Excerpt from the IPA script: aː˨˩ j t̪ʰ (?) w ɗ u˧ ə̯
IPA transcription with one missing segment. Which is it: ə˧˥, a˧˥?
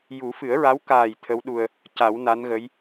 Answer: ə˧˥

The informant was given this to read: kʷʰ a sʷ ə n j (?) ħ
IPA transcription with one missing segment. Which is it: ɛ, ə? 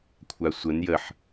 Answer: ə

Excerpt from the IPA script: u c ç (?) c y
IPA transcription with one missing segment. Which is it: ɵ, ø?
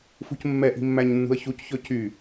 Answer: ɵ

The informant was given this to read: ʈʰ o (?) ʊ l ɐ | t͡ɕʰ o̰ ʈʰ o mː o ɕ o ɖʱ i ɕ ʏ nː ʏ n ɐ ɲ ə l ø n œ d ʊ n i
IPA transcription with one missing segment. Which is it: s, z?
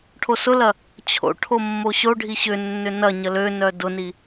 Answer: s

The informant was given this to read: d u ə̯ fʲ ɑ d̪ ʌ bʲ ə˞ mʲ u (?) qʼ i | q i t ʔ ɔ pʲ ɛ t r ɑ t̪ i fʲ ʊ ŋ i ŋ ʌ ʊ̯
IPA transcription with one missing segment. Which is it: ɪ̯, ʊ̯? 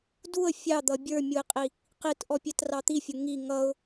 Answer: ɪ̯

